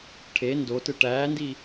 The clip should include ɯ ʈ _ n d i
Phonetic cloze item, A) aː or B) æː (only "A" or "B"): B